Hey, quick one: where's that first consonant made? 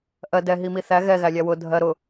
throat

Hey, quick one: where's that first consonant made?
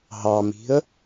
throat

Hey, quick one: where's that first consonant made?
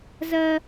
tongue tip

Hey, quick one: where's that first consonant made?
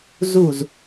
tongue tip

